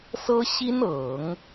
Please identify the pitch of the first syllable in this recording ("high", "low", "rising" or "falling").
high